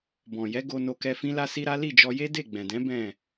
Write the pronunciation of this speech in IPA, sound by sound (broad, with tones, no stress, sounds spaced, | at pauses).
b ɔ̃˨ j ɛ˨˦ ɡ o˧ n o˧ k ɛ˧ f ĩ˦ l a˦ s i˦ ɾ a˦ l i˦˨ d͡ʒ ɔ˧ j e˦ d e˦˨ ɡ͡b ɛ̃˨ d ɛ̃˨˦ b ɛ̃˦˨